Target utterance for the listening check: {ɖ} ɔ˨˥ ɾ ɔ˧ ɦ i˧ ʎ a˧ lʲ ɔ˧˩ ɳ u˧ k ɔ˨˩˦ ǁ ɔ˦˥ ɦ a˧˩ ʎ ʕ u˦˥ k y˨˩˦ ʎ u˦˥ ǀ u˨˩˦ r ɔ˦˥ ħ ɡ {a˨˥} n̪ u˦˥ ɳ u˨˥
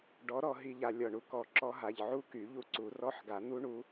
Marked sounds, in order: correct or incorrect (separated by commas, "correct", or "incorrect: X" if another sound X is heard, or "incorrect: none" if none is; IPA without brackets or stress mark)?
correct, incorrect: a˨˩˦